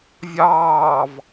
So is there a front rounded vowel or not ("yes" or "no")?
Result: no